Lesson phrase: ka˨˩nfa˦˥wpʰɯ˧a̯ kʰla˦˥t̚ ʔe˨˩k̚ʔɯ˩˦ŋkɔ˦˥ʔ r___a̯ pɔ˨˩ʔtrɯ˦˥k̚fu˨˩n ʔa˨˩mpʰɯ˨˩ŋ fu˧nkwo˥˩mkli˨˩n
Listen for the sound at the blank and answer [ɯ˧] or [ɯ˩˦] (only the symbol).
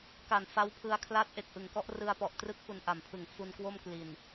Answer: ɯ˧